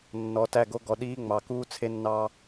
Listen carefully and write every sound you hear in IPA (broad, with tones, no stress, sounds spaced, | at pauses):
nː ɔ˨ t æ˦˨ ɡ o˦ ɡ ɔ˨ ɗ iː˦ ŋ͡m ɑ˨ k uː˦ t͡sʰ e˦ nː ɑ˦